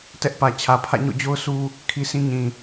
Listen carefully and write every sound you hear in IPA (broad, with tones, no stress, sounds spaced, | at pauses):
t ɛ˦ ʔ p ä˨ t͡ɕʰ ä˨ pʰ ä̰˦˨ ɲ o̰˦˨ d͡ʑ o˦ ʊ̯ sʰ u˦ | kʰ i˦ s ĩ˦ ɲ ĩ˨